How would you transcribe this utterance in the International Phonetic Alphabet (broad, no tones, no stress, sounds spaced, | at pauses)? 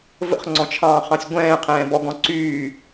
v ə̰ χ ŋ͡ǀ ɔ̃ t͡ʃʰ ɑ̃ː χ ɑ̃ sʲ ɡʷ ɛ̃ː qʰ ɛ̃ː b ɔ ɡ ɔ̃ ǀ yː